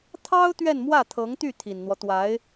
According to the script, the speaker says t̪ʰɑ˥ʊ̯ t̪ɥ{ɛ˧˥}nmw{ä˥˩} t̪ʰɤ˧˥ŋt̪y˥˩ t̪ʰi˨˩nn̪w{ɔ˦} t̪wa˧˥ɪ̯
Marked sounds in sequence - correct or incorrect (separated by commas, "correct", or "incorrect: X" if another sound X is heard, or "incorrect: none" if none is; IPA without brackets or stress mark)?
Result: incorrect: ɛ˥˧, correct, correct